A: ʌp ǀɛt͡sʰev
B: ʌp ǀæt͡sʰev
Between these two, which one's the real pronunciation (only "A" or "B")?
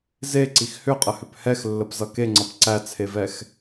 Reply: B